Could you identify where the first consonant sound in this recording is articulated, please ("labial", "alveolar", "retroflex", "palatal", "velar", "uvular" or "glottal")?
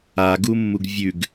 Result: velar